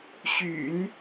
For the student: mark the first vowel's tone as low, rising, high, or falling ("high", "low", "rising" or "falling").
low